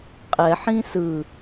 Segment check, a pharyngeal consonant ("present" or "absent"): present